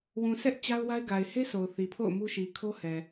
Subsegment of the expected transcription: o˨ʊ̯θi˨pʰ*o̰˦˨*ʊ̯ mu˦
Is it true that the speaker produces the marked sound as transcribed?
yes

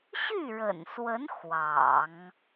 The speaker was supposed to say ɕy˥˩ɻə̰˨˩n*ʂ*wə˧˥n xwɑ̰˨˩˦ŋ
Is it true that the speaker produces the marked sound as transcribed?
no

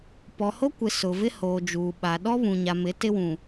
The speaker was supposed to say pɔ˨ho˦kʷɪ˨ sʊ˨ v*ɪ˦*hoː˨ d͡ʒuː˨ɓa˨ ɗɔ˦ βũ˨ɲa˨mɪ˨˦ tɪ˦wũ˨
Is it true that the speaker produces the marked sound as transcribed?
yes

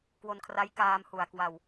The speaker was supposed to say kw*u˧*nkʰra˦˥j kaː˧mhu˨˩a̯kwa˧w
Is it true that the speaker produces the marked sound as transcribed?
no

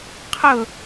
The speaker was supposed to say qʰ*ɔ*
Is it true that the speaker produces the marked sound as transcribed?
no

